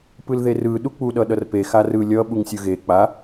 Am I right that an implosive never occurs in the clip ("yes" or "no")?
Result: no